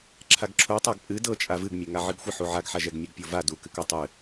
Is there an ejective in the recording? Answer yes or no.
yes